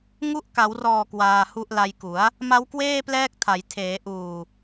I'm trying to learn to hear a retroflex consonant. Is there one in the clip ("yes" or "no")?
no